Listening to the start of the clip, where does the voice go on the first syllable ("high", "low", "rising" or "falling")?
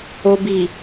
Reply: low